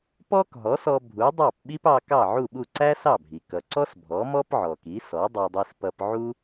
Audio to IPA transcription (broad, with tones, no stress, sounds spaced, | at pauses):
p ɔ˥ k ɦ ɔ˩˥ s ɔ˧ bʱ u˩˥ dˤ ɑ˥˩ p ɓ i˥ p ɑ˧ k ɑ˥˩ ʕ u˥˩ ɓ u˥˩ ǀ æ˥ s ɑ˥˩ bʱ i˩ k ʌ˩ ǀ ɔ˥ s bʱ ɔ˩˥ m ɔ˥ p ʕ ɔ˩ k i˩˥ s ɔ˩˥ dˤ ɑ˧ dˤ i˧ s p ʌ˧ p ʕ u˥